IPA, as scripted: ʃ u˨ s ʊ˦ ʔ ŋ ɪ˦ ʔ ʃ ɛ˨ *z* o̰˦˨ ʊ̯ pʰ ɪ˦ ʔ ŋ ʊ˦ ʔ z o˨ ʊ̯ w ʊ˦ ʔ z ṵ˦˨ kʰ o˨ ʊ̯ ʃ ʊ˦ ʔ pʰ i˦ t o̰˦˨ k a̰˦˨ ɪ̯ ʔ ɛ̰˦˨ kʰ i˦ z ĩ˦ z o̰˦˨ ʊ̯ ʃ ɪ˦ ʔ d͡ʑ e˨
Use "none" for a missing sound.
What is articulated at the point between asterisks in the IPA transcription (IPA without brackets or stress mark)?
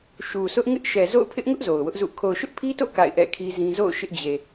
z